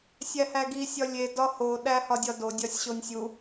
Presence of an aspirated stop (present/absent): absent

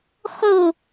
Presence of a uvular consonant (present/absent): present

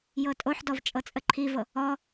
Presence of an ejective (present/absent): present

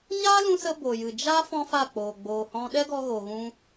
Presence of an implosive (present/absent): present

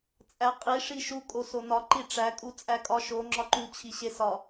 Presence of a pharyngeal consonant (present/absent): absent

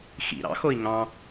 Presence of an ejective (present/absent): absent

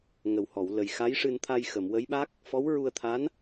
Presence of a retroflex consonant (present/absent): present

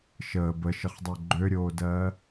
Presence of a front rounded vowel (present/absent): present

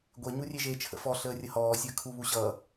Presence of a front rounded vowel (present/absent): absent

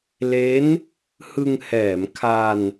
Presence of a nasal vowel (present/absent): absent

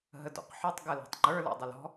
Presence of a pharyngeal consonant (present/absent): present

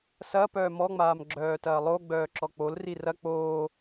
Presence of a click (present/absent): present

